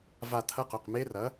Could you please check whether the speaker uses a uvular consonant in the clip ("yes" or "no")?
yes